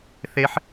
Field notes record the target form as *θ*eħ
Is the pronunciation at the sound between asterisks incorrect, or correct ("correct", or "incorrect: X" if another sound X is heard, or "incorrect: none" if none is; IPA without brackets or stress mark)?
correct